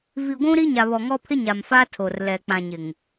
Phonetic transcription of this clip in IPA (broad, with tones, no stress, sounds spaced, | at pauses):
v i˨ ɡʷ ũ˦ ɾ i˦ ɲ a˨ β ɔ˨ ŋ ɔ˦ pʰ ɪ˦ ɲ a˨ m f a˦ tʰ o˨ r l ɛ˨ k͡p ã˨ ɲ ɪ˨ ŋ